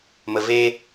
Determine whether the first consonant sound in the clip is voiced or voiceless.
voiced